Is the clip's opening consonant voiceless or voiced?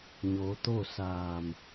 voiced